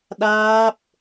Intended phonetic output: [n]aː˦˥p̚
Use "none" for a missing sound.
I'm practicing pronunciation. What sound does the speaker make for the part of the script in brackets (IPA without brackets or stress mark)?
ɗ